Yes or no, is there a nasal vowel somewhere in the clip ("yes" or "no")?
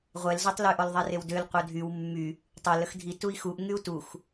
no